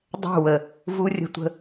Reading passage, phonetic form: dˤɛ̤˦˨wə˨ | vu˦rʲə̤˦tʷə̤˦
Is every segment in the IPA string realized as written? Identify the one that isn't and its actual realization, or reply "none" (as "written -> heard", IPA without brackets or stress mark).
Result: none